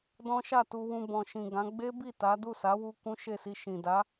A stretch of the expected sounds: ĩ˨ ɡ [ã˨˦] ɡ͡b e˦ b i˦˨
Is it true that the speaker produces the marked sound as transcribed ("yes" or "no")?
yes